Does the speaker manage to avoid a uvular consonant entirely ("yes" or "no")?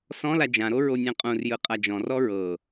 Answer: no